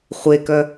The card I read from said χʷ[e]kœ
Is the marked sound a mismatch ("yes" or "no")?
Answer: no